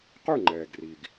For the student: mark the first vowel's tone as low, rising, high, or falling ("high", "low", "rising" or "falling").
falling